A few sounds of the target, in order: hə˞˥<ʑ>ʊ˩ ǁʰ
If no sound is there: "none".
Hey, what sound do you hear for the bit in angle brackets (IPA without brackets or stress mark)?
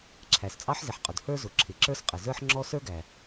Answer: z